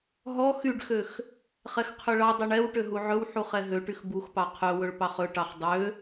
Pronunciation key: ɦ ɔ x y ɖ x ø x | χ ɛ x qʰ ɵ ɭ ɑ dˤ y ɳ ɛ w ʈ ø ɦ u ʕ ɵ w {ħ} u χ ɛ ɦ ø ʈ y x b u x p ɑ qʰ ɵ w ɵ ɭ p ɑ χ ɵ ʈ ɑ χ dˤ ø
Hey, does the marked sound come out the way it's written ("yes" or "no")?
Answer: yes